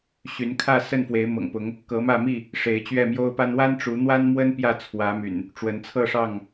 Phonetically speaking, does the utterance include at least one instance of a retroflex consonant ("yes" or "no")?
yes